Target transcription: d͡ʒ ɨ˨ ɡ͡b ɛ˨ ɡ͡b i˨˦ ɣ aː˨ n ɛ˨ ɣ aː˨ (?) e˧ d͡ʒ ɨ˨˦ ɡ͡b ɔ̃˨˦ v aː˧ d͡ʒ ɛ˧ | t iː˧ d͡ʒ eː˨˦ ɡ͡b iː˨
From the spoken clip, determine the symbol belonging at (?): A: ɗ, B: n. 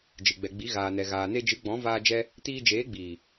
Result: B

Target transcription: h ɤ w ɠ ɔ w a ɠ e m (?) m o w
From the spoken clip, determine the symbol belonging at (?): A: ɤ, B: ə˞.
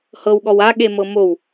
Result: A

